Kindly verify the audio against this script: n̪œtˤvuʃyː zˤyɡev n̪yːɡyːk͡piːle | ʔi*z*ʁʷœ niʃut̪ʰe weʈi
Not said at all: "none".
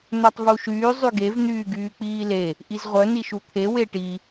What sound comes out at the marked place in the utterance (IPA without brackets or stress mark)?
z